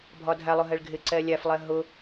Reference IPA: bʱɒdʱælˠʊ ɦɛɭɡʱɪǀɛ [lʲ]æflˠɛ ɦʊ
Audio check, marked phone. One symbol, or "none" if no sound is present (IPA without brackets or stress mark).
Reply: lʲ